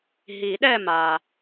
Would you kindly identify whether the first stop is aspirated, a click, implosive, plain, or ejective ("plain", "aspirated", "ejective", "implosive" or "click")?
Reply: implosive